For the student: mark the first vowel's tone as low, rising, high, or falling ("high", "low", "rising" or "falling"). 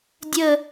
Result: falling